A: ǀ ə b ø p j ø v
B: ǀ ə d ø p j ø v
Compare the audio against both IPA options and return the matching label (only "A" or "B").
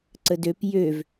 B